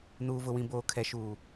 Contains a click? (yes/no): no